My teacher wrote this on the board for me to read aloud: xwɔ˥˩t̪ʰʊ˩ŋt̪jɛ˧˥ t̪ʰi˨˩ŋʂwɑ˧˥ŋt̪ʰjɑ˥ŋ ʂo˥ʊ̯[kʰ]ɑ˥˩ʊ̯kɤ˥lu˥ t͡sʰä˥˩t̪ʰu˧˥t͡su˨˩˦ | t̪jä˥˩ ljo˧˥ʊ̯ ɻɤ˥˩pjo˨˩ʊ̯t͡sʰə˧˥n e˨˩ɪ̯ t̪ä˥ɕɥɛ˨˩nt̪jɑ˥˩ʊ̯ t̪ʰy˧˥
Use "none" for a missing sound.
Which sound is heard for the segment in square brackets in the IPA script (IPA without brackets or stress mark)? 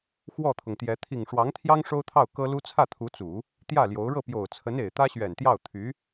t̪ʰ